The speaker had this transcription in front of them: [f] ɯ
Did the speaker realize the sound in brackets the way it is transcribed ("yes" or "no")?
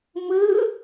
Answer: no